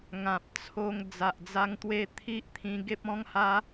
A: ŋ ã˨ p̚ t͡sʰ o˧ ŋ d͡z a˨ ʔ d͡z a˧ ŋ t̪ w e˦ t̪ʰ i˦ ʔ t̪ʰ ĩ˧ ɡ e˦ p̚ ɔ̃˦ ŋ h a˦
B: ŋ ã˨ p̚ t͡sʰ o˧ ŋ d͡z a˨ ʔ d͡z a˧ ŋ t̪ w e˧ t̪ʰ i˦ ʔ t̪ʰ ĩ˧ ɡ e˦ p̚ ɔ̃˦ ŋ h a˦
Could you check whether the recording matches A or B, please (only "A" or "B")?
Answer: B